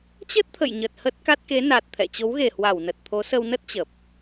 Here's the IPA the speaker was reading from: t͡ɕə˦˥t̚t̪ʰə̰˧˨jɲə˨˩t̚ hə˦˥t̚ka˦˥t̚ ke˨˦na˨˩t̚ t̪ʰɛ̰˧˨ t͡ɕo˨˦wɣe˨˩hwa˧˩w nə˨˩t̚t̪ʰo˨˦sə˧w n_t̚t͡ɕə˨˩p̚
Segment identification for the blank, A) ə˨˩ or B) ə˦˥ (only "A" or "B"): B